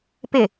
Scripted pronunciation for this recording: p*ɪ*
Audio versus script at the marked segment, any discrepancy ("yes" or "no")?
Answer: no